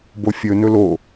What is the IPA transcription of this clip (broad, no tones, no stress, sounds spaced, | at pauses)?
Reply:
b o fʲ ɵ n ɵ l o